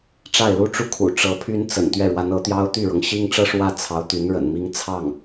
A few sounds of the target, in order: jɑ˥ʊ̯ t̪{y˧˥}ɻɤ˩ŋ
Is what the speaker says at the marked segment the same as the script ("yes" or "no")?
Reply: no